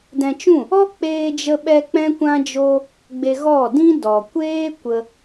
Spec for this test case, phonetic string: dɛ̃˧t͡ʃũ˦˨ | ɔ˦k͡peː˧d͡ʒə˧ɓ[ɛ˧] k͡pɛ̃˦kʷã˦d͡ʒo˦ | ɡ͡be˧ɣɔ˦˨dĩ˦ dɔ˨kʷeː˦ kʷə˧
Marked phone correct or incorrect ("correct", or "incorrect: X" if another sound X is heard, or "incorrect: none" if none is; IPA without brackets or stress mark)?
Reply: correct